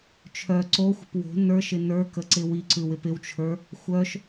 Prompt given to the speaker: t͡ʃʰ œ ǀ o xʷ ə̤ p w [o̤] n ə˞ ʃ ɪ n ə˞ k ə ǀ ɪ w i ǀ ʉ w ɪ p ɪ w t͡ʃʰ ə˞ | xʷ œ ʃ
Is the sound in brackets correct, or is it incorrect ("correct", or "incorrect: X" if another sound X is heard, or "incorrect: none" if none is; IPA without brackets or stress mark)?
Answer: correct